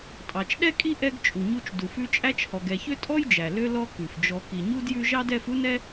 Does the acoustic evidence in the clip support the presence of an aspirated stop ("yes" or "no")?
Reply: no